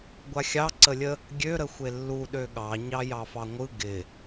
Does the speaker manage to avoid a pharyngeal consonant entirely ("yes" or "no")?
yes